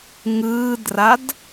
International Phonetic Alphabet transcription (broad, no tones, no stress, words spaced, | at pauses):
ŋɯːdrad